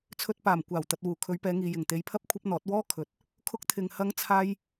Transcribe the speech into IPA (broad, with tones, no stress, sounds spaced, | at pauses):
t͡sʰ ɵ˧ t̚ p aː˨˩ m kʷ aː˨˩ w t̪ ɐ˨ t̚ w uː˨˩ kʰ ɵ˨˧ ɥ p ɛː˨˧ ŋ iː˨ j ɪ˨˩ ŋ t̪ e˨˧ j pʰ ɐ˥ p̚ kʷʰ ɐ˥ p̚ n̪ ɔː˨˥ t̚ w ɔː˥ kʰ ɵ˨ t̚ | kʰ ʊ˥ k̚ t̪ʰ ɪ˧ ŋ h ɐ˥ ŋ t͡sʰ aː˥ j